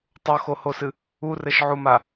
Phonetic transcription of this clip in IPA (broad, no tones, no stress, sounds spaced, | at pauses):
tˤ o x o h o s ɨ | u r ɘ ʃ ʕ u m a